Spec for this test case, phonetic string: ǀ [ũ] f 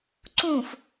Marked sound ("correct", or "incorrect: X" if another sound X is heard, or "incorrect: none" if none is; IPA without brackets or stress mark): correct